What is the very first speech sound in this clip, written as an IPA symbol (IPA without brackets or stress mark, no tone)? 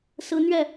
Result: s